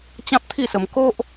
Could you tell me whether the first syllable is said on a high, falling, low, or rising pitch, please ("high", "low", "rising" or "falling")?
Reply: high